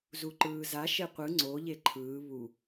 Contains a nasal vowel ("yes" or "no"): no